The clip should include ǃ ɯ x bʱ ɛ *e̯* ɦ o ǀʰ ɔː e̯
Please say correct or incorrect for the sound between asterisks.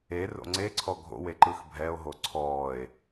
incorrect